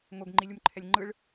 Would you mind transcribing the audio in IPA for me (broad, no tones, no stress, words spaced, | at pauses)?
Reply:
ŋoɡŋ͡ǃilʲumǃʰɛlʲ ŋ͡ǃɯɭ